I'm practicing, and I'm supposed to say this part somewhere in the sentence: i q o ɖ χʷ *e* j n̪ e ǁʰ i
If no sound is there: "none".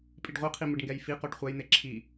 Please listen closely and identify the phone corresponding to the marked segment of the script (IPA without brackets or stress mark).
ɛ